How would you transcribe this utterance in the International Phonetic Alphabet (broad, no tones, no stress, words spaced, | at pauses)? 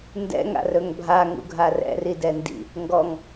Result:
ndɛ̰ ŋa̰rɵŋbʱa ŋṵɡʱarɛ̰ ridɛndḭ | ŋɡɔŋ